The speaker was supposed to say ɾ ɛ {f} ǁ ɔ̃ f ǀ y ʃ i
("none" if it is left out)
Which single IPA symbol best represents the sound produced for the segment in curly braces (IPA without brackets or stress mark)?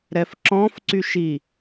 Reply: f